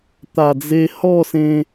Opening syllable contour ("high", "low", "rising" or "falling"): low